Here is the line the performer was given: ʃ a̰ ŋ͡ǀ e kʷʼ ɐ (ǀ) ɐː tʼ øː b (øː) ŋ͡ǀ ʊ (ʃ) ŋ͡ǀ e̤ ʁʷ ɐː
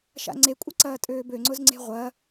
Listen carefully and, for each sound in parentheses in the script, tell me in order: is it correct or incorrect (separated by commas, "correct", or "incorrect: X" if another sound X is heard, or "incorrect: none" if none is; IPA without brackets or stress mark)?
correct, incorrect: ø, incorrect: z